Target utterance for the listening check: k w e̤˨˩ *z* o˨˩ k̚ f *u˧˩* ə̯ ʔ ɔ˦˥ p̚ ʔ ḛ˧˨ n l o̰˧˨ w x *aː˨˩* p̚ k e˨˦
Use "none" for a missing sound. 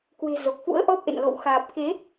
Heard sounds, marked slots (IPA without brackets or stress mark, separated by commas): z, ṵ˧˥, aː˨˩